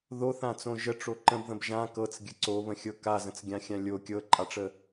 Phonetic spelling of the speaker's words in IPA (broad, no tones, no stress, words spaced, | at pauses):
ðoθãt͡sõ ʒəʈ͡ʂo ǃə̃bðə̃b ʒã kɤt͡sɡʲə ǀoβə̃xʲɤ kazə̃t͡sɡʲãxʲã lʲo kʲɤǃʼaʈ͡ʂə